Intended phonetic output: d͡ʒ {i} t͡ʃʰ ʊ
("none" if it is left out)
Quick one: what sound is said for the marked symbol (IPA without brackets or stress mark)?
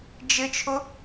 ɪ